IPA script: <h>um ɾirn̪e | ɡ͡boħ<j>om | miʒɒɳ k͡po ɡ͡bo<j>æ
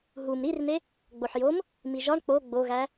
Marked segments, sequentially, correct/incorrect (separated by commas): incorrect, correct, incorrect